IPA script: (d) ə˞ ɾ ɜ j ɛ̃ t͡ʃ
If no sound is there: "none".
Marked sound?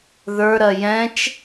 ð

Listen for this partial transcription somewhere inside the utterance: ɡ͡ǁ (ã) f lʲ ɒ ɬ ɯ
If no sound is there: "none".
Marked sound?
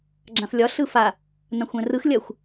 ã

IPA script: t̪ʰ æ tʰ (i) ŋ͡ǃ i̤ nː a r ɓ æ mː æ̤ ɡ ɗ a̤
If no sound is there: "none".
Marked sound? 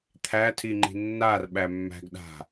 i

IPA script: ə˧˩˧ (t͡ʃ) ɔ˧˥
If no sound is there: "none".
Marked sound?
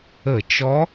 t͡ʃ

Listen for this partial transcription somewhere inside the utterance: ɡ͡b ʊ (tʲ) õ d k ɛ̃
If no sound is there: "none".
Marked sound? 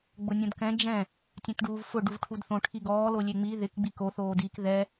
nʲ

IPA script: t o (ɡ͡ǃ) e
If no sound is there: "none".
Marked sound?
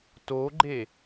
ɡ͡ǃ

